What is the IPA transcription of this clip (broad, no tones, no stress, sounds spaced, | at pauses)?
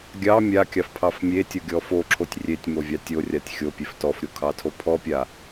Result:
ɡʲ ɑ mʲ a kʲ ɑ f pʰ ɑ f mʲ e tʲ o ɡʲ ɔ f o ǁʰ o tʲ rʲ e tʲ m o vʲ ɑ tʲ o rʲ a tʲ xʲ o pʲ e f t ɔ f ɾʲ o kʰ ɑ tʰ o pʰ ɔ pʲ a